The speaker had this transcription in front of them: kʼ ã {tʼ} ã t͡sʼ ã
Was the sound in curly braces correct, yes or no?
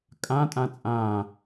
yes